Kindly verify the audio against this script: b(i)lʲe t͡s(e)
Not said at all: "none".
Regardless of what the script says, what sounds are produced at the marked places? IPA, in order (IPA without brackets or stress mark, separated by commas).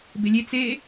e, e